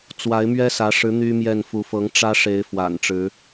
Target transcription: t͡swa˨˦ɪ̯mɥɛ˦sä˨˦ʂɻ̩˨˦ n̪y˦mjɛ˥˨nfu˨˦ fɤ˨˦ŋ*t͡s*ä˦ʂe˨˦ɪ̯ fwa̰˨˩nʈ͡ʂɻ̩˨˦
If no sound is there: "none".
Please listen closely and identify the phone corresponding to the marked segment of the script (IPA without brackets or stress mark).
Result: ʈ͡ʂ